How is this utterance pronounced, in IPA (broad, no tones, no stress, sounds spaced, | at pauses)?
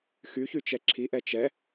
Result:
x y ç y t͡ʃ ɛ ǁʰ i ʔ ɛ t͡ʃ ɛ